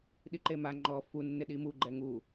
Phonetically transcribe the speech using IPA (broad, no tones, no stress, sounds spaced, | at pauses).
ɗ i ǃ e m a ŋ͡ǃ ɔ f u nː ɪ ɗ i m u ɡ͡ǃ ɛ ŋ u